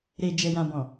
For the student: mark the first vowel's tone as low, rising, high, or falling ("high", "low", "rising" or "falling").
low